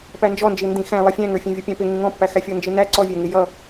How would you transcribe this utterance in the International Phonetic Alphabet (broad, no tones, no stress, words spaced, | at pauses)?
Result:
pænd͡ʒɔnd͡ʒi ndĩxæ̃ lˠʌfʲæ̃ŋə˞ fʲæ̃vʲʌpʲæ̃pɪ ŋĩŋɔ̃pːæxæ fʲɔnd͡ʒinæ ǀɔvʲæŋɪ jʌ